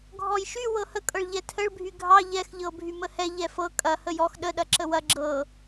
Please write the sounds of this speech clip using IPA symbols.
ɡʱ ɔ j ʃ y w ɤ h ə kʼ ɤ ɭ ʎ ɛ tʰ ə ɭ bʱ y ɡʱ ɑ ʎ ɛ x ʎ ɤ bʱ y m ə h ɛ ʎ ɛ f ɤ kʼ ɐ h ə j ɔ x ɗ ə ɗ ɐ ǁ ə w ɐ ɡ͡ǁ ɤ

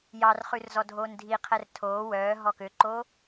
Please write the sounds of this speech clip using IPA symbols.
j ɑ r χ ʉ r z ɔ dʱ oː n dʱ i qʰ ɛ r tʰ oː w œː ɦ ɔ k ø ǃ oː

